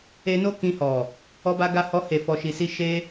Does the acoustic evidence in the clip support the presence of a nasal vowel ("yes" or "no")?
yes